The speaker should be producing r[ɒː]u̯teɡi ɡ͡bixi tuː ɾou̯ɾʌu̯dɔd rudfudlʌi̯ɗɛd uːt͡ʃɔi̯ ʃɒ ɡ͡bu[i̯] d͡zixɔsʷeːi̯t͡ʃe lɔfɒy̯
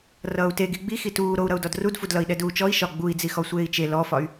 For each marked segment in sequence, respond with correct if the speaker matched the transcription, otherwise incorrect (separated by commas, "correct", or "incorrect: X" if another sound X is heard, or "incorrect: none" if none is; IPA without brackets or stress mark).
incorrect: ʌː, correct